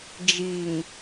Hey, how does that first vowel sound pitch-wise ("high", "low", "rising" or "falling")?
low